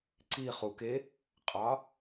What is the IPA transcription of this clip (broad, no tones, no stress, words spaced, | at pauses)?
ǀi χuk e | qʼɑ